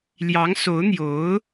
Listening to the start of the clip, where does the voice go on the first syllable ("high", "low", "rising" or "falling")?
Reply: rising